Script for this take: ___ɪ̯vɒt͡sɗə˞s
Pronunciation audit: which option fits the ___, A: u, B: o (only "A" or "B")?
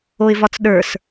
B